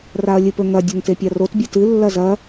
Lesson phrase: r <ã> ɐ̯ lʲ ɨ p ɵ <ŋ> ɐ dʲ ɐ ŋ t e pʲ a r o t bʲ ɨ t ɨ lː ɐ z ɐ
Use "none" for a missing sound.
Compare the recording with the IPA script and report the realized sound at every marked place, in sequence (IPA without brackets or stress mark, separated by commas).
a, ŋ